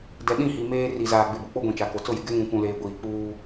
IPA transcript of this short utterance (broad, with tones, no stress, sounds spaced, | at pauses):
d ɛ˨ ɗ ĩ˦˨ h i˨ m eː˦ r i˨ z aː˨ ɡ͡b ɪ˨ b ʊ˨ k͡p o˦ ɡʷ ĩ˨ t͡ʃ a˨ k o˨ t͡s ʊ˦˨ j ɪ˨ ɡ ɛ˦ ŋ ũ˨ kʷ ũ˨ l eː˨ ɡʷ iː˨ k͡p uː˦